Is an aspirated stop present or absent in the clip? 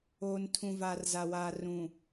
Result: present